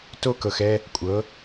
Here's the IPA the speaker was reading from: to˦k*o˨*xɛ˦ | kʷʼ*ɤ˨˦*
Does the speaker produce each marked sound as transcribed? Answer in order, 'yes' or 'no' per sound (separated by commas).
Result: no, yes